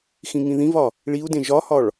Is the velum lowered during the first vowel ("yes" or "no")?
yes